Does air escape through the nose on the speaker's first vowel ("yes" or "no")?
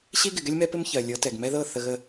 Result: no